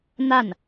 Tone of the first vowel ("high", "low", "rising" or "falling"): falling